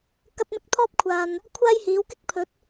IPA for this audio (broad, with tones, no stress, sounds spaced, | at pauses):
k ɐ˥ t̚ m ɪ˥ k̚ t̪ʰ ɔː˥ p̚ kʷʰ aː˨ n | kʷʰ aː˥ j h iː˨˥ w k ɪ˥ k̚ pʰ ɵ˨˥ t̚